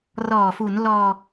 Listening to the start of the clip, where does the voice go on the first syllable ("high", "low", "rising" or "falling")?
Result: low